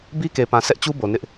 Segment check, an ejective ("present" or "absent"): absent